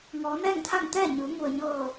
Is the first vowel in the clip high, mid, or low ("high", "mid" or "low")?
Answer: mid